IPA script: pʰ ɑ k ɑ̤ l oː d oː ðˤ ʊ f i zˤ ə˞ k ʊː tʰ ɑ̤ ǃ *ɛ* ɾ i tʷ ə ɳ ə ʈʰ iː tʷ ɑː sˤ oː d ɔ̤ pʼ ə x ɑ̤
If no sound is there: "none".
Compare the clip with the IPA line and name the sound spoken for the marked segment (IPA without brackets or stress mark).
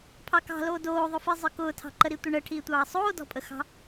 ə